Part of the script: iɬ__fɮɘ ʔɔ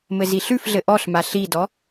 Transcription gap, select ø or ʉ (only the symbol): ʉ